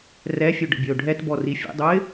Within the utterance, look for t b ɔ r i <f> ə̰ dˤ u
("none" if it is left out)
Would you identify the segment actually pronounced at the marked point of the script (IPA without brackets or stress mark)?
fʲ